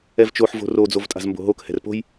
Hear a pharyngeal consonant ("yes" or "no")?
yes